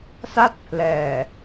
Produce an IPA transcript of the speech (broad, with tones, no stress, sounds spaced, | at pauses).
s a˥˩ t̚ pʰ l ɛː˨˩